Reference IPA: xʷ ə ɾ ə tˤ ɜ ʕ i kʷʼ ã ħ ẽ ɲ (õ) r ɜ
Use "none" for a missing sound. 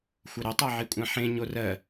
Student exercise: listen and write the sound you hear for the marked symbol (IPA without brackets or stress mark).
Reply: o